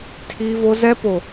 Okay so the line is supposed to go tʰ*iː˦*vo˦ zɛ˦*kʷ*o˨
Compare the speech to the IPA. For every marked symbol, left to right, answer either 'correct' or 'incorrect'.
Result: correct, incorrect

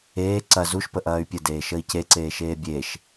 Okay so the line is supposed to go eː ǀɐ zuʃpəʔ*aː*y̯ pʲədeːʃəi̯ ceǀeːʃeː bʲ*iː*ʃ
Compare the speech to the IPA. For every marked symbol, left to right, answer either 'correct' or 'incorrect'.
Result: incorrect, incorrect

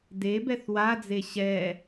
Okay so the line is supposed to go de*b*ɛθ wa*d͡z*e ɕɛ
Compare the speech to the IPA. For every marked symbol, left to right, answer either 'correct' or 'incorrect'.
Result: correct, correct

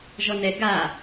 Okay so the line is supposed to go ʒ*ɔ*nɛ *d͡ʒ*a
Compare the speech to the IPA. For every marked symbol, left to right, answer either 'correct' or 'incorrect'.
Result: correct, incorrect

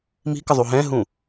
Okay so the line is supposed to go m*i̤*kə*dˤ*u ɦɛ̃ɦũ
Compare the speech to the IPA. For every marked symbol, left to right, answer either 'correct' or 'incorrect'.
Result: correct, incorrect

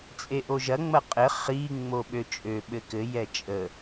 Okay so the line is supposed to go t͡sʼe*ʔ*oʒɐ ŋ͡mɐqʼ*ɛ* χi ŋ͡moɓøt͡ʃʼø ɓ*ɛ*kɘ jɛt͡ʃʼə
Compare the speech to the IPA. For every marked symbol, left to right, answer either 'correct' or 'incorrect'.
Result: correct, incorrect, incorrect

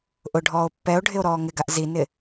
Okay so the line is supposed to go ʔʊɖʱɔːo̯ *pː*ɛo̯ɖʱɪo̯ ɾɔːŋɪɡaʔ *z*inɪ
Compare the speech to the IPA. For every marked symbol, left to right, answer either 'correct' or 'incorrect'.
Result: correct, correct

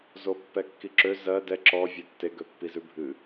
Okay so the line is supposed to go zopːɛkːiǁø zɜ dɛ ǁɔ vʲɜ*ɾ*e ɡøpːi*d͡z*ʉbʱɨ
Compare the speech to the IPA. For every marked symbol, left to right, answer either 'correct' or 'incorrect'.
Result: incorrect, incorrect

